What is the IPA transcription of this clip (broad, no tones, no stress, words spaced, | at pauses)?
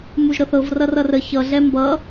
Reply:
muʒɾɤθɤv rʌrʌrə çʌ ɮɛmbʌ